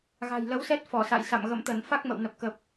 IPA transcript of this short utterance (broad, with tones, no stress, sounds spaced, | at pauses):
ɣ a̤˨˩ j l ə˨˦ w s ɛ˦˥ t̚ f ɔ˧˩ s a̰˧˨ j s a̰˧˨ m ɣ ə̰˧˨ m t̪ ə˧˩ n f a˦˥ k̚ m ə̰˧˨ w n ə˨˩ p̚ k ə˨˩ p̚